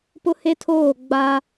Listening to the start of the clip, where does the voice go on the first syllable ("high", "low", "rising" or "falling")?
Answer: high